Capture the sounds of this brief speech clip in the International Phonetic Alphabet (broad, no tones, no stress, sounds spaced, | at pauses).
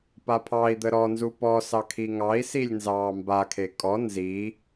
p a pʰ ɑ i̯ d̪ ə ɾ ɔ n z u p ɔ s ɑ kʰ i ŋ ɑ i̯ s i lʲ n z ɑː m b a kʰ e kʼ ɔ n z i